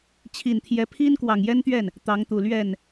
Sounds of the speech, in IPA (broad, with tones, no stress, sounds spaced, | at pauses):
t͡ɕʰ i˨˩ n t̪ʰ j ɛ˧˥ pʰ i˥ n k w ɑ˨˩ ŋ j ɛ˥ n t̪ ɥ ɛ˥˩ n | t̪ ɑ˧˥ ŋ t̪ u˨˩ l ɥ ɛ˥˩ n